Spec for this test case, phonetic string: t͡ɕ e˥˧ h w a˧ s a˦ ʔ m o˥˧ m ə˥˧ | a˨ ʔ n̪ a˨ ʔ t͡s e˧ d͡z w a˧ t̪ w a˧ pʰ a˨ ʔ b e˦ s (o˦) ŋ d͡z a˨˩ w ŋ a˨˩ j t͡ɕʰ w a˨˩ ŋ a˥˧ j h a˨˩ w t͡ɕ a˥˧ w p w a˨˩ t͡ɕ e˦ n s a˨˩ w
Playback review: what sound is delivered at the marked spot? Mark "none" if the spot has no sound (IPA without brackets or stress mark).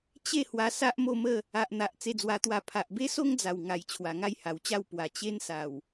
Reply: o˦